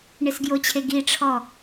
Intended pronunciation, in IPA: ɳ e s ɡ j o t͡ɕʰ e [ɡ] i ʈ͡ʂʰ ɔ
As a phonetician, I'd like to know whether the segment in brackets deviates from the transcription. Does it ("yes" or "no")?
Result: no